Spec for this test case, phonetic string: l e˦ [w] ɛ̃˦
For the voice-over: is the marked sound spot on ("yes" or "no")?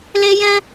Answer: no